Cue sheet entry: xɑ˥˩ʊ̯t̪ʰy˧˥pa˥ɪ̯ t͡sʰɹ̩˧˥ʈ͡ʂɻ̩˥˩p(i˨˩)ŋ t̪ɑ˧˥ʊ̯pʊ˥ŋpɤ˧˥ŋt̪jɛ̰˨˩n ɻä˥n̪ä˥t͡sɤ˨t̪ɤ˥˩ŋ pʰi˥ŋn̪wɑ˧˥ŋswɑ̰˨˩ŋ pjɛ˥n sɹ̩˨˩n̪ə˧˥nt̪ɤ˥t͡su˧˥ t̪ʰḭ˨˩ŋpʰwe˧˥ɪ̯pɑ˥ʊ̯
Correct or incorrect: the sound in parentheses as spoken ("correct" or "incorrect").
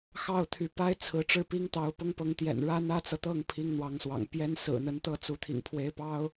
incorrect